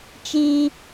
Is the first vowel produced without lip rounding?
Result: yes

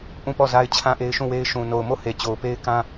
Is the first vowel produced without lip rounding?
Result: no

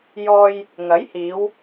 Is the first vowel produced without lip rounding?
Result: no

